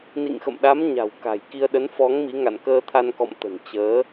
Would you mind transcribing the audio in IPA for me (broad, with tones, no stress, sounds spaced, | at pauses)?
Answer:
n ḭ˧˨ ŋ x ə̰˧˨ m ɗ a˨˦ m ɲ a̤˨˩ w k a̤˨˩ j k i˧ ə̯ ɗ ə˨˦ n f ɔ˨˦ ŋ m i˨˦ ŋ a̰˧˨ n k əː˧ t̪ʰ a˧ n k ɔ̰˧˨ m t̪ ə̤˨˩ n t͡ɕ əː˨˦